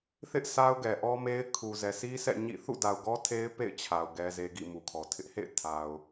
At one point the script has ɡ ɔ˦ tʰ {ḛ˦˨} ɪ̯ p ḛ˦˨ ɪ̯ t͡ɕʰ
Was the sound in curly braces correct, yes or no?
no